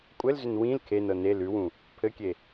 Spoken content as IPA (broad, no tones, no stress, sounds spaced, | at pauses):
kʷʼ ɘ l z ʏ n w ĩ l kʰ e n ɤ n e l ʉ w ũ | pʰ ɘ kʲ e